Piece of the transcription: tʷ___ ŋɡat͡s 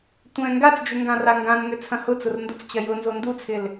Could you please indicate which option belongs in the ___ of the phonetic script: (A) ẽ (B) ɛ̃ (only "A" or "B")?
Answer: B